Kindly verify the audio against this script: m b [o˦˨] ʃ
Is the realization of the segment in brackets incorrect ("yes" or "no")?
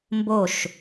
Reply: no